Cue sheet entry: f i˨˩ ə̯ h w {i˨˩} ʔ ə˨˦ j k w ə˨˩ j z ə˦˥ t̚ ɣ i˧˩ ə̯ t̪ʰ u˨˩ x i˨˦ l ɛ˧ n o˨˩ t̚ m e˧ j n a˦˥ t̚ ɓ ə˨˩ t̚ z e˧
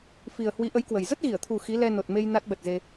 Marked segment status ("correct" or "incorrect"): incorrect